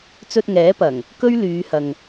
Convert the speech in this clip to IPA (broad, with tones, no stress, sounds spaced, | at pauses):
t͡s ɵ˧ t̚ ŋ ɛː˨˥ p ɐ˨˩ ŋ | k ɵ˥ ɥ l yː˨˧ h ɐ˨ ŋ